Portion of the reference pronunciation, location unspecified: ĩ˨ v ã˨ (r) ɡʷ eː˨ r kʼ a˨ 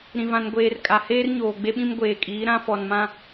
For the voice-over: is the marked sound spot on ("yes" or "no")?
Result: no